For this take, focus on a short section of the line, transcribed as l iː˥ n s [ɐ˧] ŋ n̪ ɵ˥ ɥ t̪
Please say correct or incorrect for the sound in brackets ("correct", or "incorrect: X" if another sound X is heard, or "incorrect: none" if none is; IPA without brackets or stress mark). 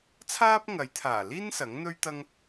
incorrect: ɐ˨˥